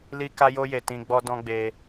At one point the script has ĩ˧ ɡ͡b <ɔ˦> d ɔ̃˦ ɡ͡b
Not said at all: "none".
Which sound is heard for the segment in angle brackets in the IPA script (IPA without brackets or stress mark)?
ɔ˦